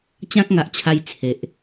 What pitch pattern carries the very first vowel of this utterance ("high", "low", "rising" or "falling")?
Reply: high